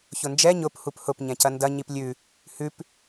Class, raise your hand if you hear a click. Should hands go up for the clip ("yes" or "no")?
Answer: no